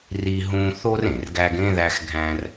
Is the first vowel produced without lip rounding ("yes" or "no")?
yes